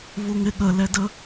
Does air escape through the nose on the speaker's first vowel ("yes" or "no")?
no